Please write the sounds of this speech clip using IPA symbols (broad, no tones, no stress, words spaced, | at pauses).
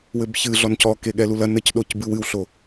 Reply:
wɘbçɨ ɮɔncɔke ɠɛlulɐ nɘcɗoc bɨwɨwɬo